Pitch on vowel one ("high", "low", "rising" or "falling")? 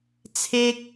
high